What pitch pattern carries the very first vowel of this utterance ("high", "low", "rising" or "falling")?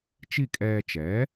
falling